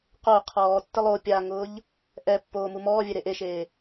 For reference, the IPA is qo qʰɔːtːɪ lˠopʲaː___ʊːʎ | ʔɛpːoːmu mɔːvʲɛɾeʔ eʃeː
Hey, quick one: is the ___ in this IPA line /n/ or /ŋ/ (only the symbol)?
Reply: ŋ